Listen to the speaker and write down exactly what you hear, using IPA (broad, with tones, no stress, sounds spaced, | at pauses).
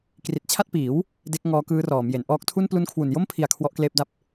k r i˨˩ t̚ t͡ɕʰ a˥˩ t̚ p iː˩˦ w | d e˦˥ k̚ ŋ ɔː˦˥ k ɯː˦˥ r ɔː˩˦ m j e˩˦ n ʔ ɔː˦˥ k̚ tʰ u˥˩ n p l u˦˥ n kʰ w u˨˩ n j o˥˩ m pʰ i˨˩ a̯ kʰ w ɔ˥˩ ʔ k l eː˥˩ p̚ d a˥˩ p̚